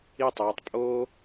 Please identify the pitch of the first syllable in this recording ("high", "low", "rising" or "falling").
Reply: falling